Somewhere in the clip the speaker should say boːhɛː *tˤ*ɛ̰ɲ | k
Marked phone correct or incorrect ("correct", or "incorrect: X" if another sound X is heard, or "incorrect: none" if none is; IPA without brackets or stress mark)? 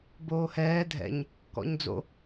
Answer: incorrect: dʱ